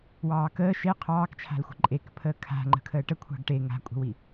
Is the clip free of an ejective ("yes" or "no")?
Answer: no